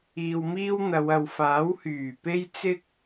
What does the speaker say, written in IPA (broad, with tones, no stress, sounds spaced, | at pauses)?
iː˨ w m iː˥ w n̪ ɐ˨˧ w ɐ˨ w f aː˨˥ w h yː˨˩ p e˥ j t͡s ɪ˥ k̚